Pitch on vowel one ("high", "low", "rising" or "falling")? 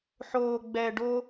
low